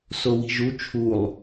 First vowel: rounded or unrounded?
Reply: rounded